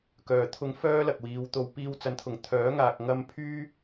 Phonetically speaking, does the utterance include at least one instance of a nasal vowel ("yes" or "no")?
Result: no